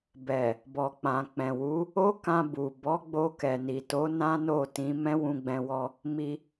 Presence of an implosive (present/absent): absent